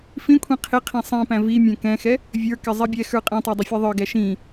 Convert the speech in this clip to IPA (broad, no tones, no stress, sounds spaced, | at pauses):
f ĩ kʷʰ ĩ qʰ ɪ qʰ ĩ sˤ ĩ p æ̃ v i mʲ ɛ̃ k ɛ̃ x ɛ | vʲ ə˞ k ɪ zˤ i bʲ ɛ x ə˞ qʼ ɛ̃ tˤ ɛ dˤ ɪ fʲ ɛ ðˤ ə˞ ɡ æ ʃ ĩ